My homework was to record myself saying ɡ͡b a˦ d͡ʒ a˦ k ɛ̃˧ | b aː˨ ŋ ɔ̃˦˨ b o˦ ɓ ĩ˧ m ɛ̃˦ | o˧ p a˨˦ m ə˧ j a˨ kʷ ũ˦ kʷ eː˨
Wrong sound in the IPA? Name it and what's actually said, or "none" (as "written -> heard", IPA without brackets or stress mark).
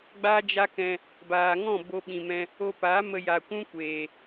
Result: none